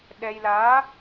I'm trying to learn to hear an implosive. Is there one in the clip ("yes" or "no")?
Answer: yes